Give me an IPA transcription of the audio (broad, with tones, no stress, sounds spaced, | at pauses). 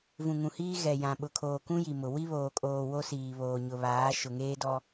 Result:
v ũ˨ ŋ ũ˨ h iː˦ ɣ ɛ˨ j ã˨ ɓ ʊ˨ kʰ oː˨ k ũ˦ j i˨ m ʊ˨ w i˦ β oː˨ kʼ oː˨ w o˦ s iː˨ β oː˨ ɲ ʊ˨ β aː˨˦ ʃ ʊ˨ ŋ eː˦ d ɔ˦